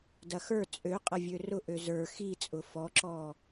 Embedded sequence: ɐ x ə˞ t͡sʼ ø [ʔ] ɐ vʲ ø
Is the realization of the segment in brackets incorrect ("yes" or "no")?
yes